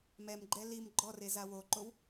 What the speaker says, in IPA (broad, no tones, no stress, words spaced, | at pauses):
mɛmɡ͡ǃɛ lim ɡ͡ǃɔreza woǃow